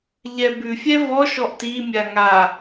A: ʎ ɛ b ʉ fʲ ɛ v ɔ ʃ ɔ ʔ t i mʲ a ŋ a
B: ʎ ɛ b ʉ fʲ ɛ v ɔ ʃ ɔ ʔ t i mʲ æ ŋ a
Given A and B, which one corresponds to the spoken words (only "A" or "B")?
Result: A